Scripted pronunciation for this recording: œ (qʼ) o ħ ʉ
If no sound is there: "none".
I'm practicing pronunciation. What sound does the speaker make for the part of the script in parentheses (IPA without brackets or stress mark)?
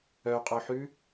qʼ